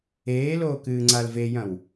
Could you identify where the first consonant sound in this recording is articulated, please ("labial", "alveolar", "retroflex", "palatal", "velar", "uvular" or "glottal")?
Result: alveolar